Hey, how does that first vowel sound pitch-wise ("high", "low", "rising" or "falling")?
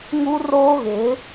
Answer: high